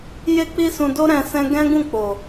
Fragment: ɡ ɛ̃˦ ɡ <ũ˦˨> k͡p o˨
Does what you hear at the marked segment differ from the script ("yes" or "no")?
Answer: no